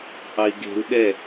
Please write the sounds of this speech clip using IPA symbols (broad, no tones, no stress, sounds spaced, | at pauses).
ʔ ɑ i̯ ɡ e̤ u̯ ɗ ɛ